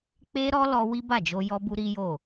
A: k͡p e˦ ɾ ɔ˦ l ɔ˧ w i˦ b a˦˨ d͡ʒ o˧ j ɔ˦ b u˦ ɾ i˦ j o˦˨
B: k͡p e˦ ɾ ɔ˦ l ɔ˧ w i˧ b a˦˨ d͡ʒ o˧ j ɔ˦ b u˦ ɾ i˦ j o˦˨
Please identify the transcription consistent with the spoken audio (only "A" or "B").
A